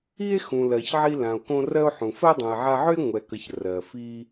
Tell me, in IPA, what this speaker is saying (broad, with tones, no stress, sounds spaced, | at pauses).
i˥ e̯ x ũ˨ l ɜ˨ ç ʕ i˦ l ã˨ o̯ k õ˦ r ɜ˦ o̯ ħ ũ˨ f ɜ˥ dˤ õ˨ e̯ ʕ a˦ ʕ ʏ˥ e̯ ŋʷ ɛ˨ k ə˨ ç r ɜ˩ f i˦